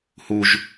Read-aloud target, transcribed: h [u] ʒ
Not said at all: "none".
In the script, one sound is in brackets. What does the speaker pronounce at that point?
u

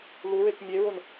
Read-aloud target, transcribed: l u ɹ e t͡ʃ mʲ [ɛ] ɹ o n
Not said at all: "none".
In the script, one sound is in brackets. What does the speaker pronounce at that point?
e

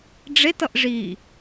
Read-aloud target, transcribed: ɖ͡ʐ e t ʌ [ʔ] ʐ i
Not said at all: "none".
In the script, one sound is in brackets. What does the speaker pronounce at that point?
ʔ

